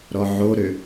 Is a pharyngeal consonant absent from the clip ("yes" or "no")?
no